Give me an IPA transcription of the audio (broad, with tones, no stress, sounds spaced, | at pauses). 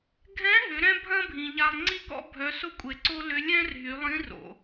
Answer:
ɡʱ ɛ̃˧˥ ɦ ʏ˩˧ ɾ ɛ̃˥ bʱ ɐ̃˥ bʱ ĩ˩ ʎ a˧ lˠ ŋ͡ǀ i˥ k ɔ̰˥ bʱ œ˩˧ s ʊ˧˥ kʷʼ e˩ ǀ o˥ l ʏ˧˥ lʲ ɛ̃˥ r ɦ y˩˧ lˠ ĩ˧˥ r o̰˩